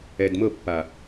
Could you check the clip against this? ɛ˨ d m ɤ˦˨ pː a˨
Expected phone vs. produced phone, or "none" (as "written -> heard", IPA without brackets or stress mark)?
none